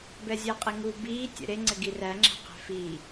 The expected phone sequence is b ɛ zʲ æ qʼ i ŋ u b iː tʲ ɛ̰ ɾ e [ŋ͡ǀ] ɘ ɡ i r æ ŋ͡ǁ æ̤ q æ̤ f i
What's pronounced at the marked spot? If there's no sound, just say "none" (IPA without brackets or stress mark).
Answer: ŋ͡ǀ